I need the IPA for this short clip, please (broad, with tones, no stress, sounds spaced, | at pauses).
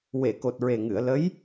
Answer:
w e˨˩˨ k o˨˩ t̚ ɹ e˨˩ ŋ ɨ˨˩˨ ə̯ l ə˧˥ j